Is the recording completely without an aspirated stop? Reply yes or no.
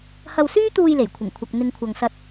no